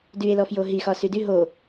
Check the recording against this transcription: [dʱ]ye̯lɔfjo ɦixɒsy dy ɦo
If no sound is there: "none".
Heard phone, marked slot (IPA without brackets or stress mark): d